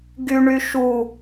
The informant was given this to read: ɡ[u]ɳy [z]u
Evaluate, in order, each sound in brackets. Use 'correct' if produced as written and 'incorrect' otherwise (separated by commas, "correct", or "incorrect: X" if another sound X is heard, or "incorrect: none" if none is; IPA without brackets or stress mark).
incorrect: y, incorrect: ʃ